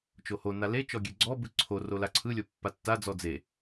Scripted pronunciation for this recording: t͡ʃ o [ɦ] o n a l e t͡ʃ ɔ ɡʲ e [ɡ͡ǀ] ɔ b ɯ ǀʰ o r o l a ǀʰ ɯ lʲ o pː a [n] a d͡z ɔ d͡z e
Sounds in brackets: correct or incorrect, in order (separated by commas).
incorrect, correct, incorrect